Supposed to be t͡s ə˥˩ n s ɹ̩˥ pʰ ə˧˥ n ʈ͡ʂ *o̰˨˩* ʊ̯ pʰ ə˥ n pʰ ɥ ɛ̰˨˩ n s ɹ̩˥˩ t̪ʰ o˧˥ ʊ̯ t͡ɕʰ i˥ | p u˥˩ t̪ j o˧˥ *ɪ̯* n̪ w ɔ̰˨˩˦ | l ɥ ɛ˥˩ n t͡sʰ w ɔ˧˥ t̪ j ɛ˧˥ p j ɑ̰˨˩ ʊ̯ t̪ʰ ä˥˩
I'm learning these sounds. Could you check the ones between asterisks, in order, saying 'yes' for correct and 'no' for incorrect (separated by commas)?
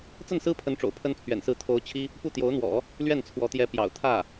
yes, no